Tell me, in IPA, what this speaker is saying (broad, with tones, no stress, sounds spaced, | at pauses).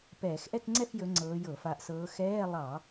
p ɛː˧˩˧ x ʔ ɛ˥˧ k ŋ͡ǀ ɛ˥˧ f j ɵ˨˦ ŋ͡ǀ ɤː˨˦ j ɤ˧˩˧ f a˨˦ ʔ s ɤː˨˦ x ɛː˧˥˧ lˠ ɑ˧˩˧